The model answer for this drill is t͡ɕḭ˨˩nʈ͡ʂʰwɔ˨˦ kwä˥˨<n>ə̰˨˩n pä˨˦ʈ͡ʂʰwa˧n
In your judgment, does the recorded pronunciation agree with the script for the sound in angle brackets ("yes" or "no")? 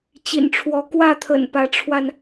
no